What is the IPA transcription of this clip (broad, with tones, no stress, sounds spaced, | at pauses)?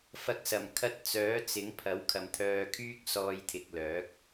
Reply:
f ɐ˨˥ k̚ s ɐ˨˩ m kʰ ɐ˧ t̚ t͡s œː˨˥ t͡s ɪ˨˥ ŋ pʰ ɐ˨˥ w kʰ ɐ˨ m t̪ʰ œː˧ kʰ yː˥ k̚ s ɔː˧ j t̪ʰ ɪ˨ k̚ l œː˨˥ k̚